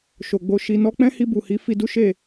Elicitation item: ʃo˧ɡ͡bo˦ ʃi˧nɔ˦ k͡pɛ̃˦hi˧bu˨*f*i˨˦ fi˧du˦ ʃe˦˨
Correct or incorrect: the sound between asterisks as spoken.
incorrect: h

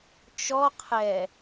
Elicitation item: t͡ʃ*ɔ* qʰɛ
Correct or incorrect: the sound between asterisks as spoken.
correct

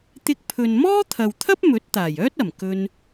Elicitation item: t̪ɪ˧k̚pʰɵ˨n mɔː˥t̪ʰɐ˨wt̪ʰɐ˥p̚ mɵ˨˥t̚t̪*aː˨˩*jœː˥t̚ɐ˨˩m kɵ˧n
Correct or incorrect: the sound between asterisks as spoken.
correct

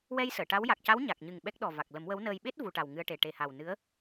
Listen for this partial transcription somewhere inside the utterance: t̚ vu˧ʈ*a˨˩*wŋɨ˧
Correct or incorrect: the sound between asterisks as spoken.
correct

